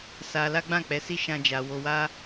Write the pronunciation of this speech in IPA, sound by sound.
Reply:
s a˧ l a˦ ɡ͡b ã˦˨ k͡p ɛ˧ s i˦ ʃ ã˦ d͡ʒ a˧ w o˧ w a˦

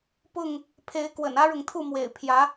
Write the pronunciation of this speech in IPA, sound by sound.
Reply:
p ʊ˥˨ ŋ | pʰ e˨˦ ɪ̯ k w ə̰˨˩ n ä˦ ɻ ʊ˨ ŋ t̪ʰ u˥˨ m w ḛ˨˩ ɪ̯ pʰ j ä˨˦

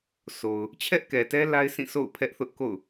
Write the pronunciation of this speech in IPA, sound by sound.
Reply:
sʰ o˨ ʊ̯ | t͡ɕʰ ɛ˦ ʔ k ɛ˨ t ɛ˦ l a˦ ɪ̯ s ĩ˦˨ sʰ o̰˦˨ ʊ̯ pʰ ɛ˦ ʔ θ ʊ˦ ʔ k o̰˦˨ ʊ̯

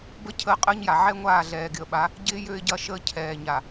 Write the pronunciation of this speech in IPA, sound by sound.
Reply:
b ə˦ cʰ əː˦ qʼ əː˦ ɲ j a˨ ʕ ɛ˦ ŋʷ aː˦˨ ɮ ɛː˨ ɡ ɪ˨ ə̯ ɓ a˨˦ | ɟ ɪː˦ j ø˦ ɪ̯ ɟ ɐ˦ ʃ əː˦ cʰ ɛː˨ ɲ a˨

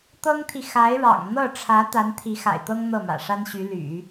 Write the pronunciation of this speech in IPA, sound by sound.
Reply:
t̪ ɤ˥ ŋ t̪ʰ i˨ x a˧˥ ɪ̯ ɻ ɑ̰˨˩ ŋ n̪ ɤ˥˩ ʈ͡ʂʰ ä˧˥ t̪ a˧˥ n t̪ʰ i˧˥ x a̰˨˩ ɪ̯ t̪ ɤ˥ ŋ n̪ ɤ˥˩ m ä̰˨˩ ʂ a˥ n ɕ y˧˥ l y̰˨˩˦

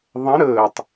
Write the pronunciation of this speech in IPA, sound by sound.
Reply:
ðˤ ə̃ ɾ əː tˤ

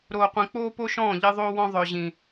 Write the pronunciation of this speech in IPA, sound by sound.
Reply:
ɾ oː˨ qʷ ĩ˨ k͡p oː˦ p o˦ ʃ ɔ̃ː˦˨ ʎ e˦ ðˤ oː˦ w ɔ̃˦ ðˤ œ˨ ʑ ĩ˨

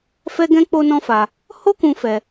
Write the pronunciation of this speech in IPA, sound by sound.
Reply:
f ɛ˦ ɡ ɛ̃˦ k͡p o˦ n ɔ̃˦ f a˧ | h o˦ k ũ˧ f ɛ˦

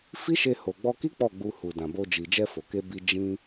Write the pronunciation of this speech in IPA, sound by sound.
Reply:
f i˦ ʃ e˧ h o˨ ɡ͡b ɔ˧ k i˦ k͡p ɔ˦˨ ɡ͡b u˧ h u˨ d ã˨ b o˧ d͡ʒ i˨ d͡ʒ ɛ˧ f o˨ k e˧ b i˧ d͡ʒ ĩ˧

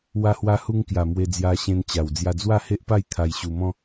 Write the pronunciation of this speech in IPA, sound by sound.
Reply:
w a˧ h w a˧ h u˧ ŋ k j a˨˩ m w e˧ d͡z j a˧ ɕ ẽ˧ n t͡ɕ a˨˩ w d͡z j a˧ d͡z w a˥˧ h e˦ ʔ p a˥˧ j t̪ʰ a˧ j ɕ u˧ m ɔ̃˦

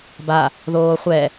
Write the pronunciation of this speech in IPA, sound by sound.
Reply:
b a | ð oː χʷ ɛ

